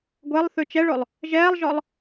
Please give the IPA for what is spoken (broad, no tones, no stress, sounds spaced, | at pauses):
ɡʷ ɛ lˠ θ ʉ t͡ʃ ɛ ɭ o lˠ | ʒ ɛː lˠ ʒ ɔ lˠ